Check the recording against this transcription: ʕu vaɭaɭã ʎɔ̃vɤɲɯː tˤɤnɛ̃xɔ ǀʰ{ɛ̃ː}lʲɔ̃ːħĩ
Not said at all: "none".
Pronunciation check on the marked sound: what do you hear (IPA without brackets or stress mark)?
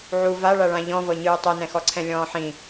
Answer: ɛ̃